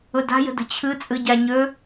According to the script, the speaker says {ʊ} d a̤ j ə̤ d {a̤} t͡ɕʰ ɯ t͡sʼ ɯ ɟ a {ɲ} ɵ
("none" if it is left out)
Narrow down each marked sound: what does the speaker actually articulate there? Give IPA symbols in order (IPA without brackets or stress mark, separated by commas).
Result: ʊ, ə̤, ɲ